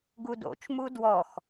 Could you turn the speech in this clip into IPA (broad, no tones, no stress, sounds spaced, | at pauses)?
ɡ u d o̰ t͡ʃ m u d w ɔ x